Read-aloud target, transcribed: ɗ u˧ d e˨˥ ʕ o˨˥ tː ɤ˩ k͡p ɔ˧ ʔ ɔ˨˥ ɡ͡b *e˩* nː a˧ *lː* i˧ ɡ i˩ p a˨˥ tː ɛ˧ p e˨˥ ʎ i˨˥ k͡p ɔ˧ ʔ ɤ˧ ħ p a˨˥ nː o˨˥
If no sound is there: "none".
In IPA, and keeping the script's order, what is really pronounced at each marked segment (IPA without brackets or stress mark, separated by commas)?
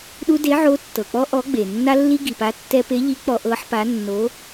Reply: e˩, lː